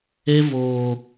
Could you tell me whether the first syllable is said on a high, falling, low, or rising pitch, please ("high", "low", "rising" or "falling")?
high